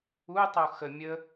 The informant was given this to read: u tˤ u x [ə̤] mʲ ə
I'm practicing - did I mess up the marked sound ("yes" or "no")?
yes